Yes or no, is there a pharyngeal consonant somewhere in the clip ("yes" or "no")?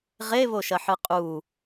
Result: yes